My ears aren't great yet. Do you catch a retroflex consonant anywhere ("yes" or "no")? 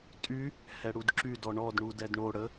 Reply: yes